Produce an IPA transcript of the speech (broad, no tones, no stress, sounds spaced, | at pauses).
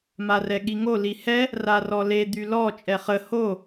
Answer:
m a r ɛ ɠ i ŋ o l i h ɛ | r a r ɔ l e d̪ y l ɔ t͡ʃʼ ɛ χ ə h o